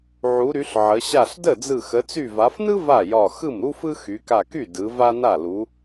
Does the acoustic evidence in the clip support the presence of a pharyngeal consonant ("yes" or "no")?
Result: yes